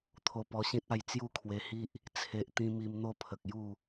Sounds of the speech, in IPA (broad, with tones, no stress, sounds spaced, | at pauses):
t̪ʰ o˧ p ɔ˧ ɕ ĩ˦ t̚ a˥˧ j t͡s j u˥˧ kʰ w e˧ h i˦ ʔ | t͡sʰ e˨ ʔ t̪ ĩ˧ m i˧ m n̪ o˥˧ pʰ ə˨ k̚ j u˥˧